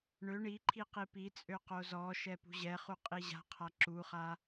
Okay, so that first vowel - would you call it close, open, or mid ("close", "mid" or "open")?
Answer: mid